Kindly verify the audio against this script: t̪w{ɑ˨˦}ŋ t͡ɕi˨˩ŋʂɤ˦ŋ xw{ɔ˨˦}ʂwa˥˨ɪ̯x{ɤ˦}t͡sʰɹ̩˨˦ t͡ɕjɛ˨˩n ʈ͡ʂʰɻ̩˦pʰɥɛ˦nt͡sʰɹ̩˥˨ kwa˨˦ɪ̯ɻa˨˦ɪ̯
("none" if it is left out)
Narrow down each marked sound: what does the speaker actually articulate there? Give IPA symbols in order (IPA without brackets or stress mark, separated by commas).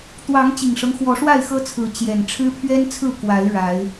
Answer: ɑ˨˦, ɔ˨˦, ɤ˦